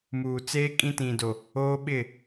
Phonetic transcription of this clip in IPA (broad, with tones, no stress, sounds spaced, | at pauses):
m uː˨ t͡s eː˦ kʼ ĩ˦ t ĩ˨ d o˨ | oː˦ ɓ ɪ˦˨